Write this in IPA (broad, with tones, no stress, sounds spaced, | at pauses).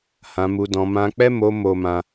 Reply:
h ã˧ m u˧ d ɔ̃˧ m ã˦ k͡p ɛ˦ m o˧ m o˦ m ã˦